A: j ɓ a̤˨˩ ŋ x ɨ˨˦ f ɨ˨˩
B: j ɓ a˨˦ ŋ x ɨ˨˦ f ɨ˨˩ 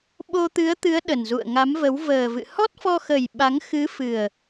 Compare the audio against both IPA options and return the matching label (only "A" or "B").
B